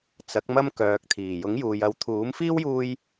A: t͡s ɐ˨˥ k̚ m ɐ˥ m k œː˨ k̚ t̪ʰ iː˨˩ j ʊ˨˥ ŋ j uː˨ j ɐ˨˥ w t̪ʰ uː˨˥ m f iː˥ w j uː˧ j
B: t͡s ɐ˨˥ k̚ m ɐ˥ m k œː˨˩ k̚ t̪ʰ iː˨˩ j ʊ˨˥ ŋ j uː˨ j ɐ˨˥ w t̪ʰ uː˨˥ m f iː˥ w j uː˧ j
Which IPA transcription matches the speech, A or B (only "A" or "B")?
A